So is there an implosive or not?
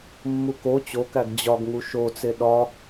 yes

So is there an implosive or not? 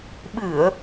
yes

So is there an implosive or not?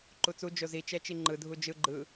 no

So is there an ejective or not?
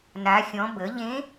no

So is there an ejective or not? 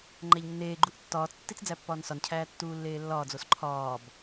no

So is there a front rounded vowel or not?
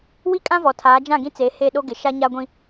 no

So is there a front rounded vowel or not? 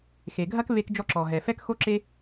no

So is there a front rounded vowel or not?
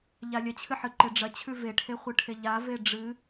no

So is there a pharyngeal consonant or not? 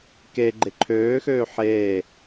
yes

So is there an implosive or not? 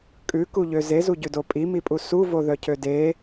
no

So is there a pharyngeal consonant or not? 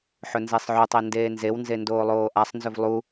yes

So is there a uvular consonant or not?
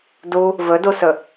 no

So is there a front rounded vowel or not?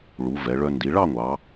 yes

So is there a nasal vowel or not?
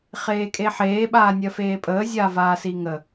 no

